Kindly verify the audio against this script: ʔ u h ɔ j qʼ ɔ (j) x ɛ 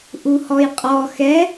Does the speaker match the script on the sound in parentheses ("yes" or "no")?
no